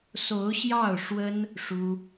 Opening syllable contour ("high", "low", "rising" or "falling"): rising